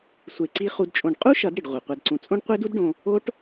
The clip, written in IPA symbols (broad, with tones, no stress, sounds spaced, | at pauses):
sʷ e˧ ǀ i˦ χ u˧ d t͡ʃʼ õ˧ ɖ qʼ u˦ ʃ ʌ˨˦ d ɽ i˨ ɖ ʁʷ i˨ qʷ a˧ d ǀ ũ˧ t͡sʼ õ˦ ɖ qʷ e˦ d u˦ d ɖ õ˧ | o˦ ʈ